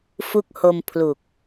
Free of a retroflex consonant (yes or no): yes